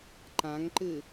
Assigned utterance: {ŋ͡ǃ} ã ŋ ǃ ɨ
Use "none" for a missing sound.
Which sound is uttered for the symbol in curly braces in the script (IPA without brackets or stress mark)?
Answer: ǃ